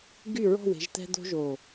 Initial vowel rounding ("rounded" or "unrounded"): rounded